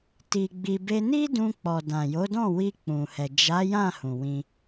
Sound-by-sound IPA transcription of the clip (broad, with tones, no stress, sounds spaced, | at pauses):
t i˧ ɡ͡b i˧ b e˧ n i˦ d ũ˧ k͡p ɔ˨ d ã˨ j o˨˦ d ɔ̃˦˨ w i˧ k͡p ũ˨ h ɛ˨ d͡ʒ a˨˦ j ã˦˨ h ũ˨ w ĩ˧